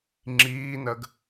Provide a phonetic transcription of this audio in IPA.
ŋ͡ǁiːnɜɡ

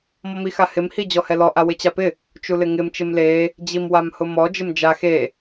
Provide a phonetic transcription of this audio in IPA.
mɔmixahɪm hid͡ʑɔhɛlɔ ʔawɪt͡ɕapɪ | t͡ʃulɪŋɪm t͡ʃɪmle | d͡ʑimwamhʊmɔ d͡ʒɪmd͡ʒa xe

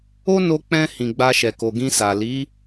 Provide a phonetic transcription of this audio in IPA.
o˦no˧k͡pɛ̃˧ hĩ˨ɡ͡ba˧ʃɛ˨ko˨ ɡĩ˧sa˨ li˨˦

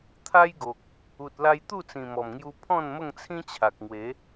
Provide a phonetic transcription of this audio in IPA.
t̪ʰa˦jɡo˨k̚ | u˨t̚la˧j t̪u˥˧t͡sĩ˨˩mɔ˨˩mŋju˧ pʰɔ̃˥˧n mə˥˧ŋt͡sʰĩ˦t͡ɕʰa˨k̚ŋwe˨˦

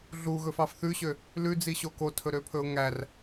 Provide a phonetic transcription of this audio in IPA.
ɮuɣɵfɑf θʉɕø | lʉd͡ziɕo kotʰɵɾøpʰɵʊ̯ ŋær

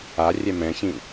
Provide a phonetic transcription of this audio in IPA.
arʲɛ mɛ̃çĩ

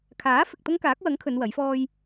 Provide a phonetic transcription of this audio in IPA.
kʰaː˨˥ fɪ˨k̚ t̪ɐ˥ŋkaː˨˥k̚wɐ˨˥ŋ kʰɵ˨˧n wɐ˨˥jfɔː˥j

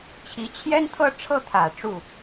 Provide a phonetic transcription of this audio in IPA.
t͡ɕʰi˧˥t͡ɕʰjɛ˥n t̪ʰɤ˥˧ʈ͡ʂʰɤ˥˩t̪ʰä˨˩ ʈ͡ʂu˥˩

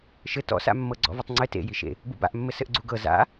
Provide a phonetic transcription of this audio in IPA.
ʃɘ tɔ̰sa̰mːɤ ɡ͡ǀɔ̰vɘtˤŋ͡ǀɘ tḛjiʃḛ | bṵba̰ʔmːɘ sɘʔɡ͡ǀuɡɤ za̰

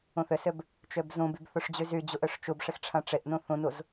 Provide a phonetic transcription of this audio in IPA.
ũθʏsʏb | t͡ʃøbzũbyb θuʂd͡ʑyzyd͡ʑuʔ øʂt͡ʃubʂɪx ʈ͡ʂʰɐ̃ʈ͡ʂɪʔnũ θũnuz

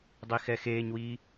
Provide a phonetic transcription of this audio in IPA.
dˤixɛxeːɲwi

